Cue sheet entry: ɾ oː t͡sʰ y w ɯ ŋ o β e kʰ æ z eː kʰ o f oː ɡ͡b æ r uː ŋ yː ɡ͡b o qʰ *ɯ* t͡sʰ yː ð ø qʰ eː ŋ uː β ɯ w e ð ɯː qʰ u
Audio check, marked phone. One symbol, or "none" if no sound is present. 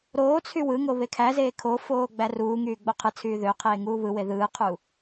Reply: ɯ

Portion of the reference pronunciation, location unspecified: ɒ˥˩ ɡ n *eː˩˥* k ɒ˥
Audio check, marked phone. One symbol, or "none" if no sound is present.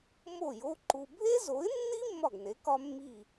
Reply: e˩˥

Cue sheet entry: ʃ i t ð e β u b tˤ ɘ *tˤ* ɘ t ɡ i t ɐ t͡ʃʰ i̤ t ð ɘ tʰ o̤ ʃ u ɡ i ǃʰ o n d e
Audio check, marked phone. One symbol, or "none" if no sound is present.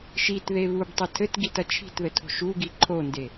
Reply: tʰ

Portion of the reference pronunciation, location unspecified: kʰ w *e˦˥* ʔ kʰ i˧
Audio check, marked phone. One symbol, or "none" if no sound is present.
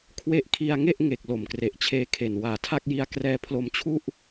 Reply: e˦˥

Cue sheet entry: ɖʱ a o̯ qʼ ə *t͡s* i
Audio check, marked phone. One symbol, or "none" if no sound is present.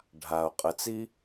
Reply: t͡s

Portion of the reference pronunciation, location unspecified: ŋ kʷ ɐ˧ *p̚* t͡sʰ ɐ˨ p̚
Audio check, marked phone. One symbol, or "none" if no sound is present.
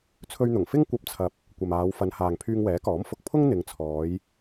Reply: p̚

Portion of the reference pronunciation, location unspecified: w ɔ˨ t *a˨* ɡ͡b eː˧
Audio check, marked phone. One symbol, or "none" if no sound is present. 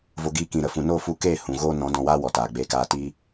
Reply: aː˨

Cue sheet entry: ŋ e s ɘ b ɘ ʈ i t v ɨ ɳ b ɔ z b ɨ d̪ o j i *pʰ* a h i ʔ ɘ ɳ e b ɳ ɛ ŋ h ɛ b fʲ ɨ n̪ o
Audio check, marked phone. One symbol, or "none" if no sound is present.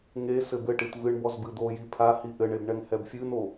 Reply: pʰ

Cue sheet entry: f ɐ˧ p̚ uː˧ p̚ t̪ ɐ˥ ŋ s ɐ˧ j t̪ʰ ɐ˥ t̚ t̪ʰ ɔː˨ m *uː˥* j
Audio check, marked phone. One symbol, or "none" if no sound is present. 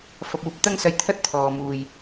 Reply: uː˨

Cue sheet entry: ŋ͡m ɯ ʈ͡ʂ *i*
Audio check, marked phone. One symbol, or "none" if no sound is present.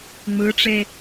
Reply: e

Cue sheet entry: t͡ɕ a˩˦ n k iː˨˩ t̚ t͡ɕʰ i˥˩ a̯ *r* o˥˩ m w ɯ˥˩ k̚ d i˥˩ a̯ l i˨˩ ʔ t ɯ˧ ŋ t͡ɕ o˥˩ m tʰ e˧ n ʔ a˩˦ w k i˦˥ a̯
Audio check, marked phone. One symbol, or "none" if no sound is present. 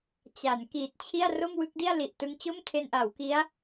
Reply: r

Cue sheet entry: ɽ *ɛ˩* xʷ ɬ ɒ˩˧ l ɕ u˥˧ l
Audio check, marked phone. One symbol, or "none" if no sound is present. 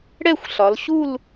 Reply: ɛ˥˧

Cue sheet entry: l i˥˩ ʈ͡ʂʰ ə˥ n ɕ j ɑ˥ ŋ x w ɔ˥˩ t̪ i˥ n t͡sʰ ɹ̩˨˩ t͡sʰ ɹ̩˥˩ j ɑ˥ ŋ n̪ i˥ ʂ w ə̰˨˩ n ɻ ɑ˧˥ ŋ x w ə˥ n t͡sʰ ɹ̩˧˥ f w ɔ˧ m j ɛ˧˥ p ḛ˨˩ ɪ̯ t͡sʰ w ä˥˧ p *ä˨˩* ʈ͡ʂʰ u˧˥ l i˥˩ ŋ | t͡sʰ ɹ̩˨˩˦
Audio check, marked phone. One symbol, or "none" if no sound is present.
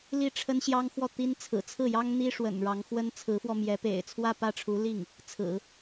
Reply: ä˥˩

